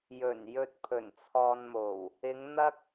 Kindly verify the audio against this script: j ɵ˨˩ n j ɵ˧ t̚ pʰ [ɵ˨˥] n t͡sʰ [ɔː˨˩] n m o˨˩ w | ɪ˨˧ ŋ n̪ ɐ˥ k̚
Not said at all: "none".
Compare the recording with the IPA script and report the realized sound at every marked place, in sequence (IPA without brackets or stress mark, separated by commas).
ɵ˨˩, ɔː˧